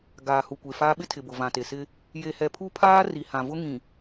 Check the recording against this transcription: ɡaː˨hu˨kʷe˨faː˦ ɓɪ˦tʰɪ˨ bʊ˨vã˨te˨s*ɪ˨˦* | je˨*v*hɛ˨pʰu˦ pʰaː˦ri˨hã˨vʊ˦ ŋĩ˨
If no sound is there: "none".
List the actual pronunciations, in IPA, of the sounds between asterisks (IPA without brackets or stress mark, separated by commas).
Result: ɪ˦, none